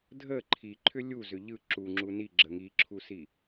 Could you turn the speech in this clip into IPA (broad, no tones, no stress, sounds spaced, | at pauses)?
dʱ ə ǃʰ i ǃʰ ʏ lʲ u z ʏ ʎ ɯ ǁ u ŋ͡ǁ u n i ɡ͡ǁ ə ŋ i ǁʰ u s i